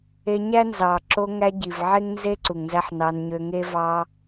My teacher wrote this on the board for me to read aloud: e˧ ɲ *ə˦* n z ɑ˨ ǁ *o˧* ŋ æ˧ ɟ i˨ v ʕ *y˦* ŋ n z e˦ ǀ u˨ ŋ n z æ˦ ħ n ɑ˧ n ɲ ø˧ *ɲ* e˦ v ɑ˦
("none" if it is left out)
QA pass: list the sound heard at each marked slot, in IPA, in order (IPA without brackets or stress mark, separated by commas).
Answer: æ˦, o˧, e˦, ŋ